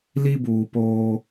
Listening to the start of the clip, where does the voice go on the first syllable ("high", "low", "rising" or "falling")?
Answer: high